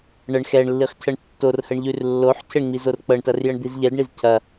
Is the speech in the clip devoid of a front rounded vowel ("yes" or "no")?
yes